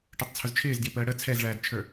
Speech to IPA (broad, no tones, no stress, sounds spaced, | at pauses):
ʈ ə˞ tˤ t͡sʰ ʊ z t͡ʃʰ ɪː z d j ɪ p əː ɽ ə t͡sʰ ɛ z ɭ æː d t͡ʃʰ ə˞